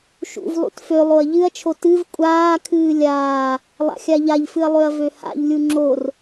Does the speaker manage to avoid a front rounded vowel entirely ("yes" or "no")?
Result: no